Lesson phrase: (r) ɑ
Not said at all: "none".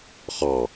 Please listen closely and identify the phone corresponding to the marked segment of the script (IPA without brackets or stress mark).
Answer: χ